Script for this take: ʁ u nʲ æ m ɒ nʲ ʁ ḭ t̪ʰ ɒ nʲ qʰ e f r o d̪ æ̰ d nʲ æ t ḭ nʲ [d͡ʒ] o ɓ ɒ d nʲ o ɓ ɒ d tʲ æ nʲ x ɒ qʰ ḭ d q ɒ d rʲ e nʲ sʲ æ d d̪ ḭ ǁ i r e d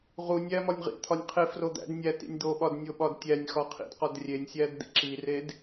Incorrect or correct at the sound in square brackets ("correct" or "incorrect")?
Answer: incorrect